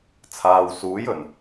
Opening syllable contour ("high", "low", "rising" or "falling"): low